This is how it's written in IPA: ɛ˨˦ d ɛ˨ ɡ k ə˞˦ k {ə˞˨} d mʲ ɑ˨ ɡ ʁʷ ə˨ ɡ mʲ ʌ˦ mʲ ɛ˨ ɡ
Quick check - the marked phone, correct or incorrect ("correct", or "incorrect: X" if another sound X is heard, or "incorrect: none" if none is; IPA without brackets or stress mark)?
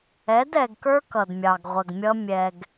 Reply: incorrect: ʌ˨